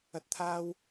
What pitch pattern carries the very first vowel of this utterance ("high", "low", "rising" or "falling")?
rising